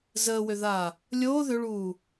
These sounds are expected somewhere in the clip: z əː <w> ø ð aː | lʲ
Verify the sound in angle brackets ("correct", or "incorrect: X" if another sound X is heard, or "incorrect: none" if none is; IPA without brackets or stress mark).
correct